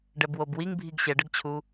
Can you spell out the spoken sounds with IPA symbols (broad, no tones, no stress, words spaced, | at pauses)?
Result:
ɖɛbwobwiŋ bʱiɡɕɛɖəɡt͡ɕʰu